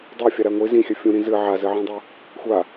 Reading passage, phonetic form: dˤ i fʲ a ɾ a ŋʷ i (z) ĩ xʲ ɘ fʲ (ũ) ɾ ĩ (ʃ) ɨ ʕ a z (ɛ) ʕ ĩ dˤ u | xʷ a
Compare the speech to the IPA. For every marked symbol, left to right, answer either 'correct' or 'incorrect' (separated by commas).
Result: correct, correct, incorrect, incorrect